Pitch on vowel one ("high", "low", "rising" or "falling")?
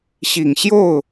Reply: low